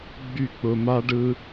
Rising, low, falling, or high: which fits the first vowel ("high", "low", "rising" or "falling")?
falling